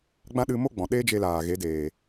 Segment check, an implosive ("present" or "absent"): present